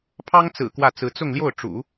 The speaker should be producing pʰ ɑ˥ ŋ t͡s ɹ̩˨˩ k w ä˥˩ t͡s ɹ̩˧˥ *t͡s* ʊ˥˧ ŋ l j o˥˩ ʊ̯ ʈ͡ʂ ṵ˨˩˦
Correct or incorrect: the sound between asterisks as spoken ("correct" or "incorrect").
correct